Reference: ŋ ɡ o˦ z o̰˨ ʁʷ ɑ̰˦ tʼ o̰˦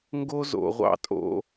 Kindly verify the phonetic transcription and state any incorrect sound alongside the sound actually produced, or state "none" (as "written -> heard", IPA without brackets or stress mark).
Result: none